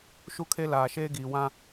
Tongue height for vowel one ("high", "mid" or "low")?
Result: high